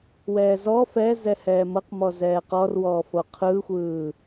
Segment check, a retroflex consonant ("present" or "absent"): absent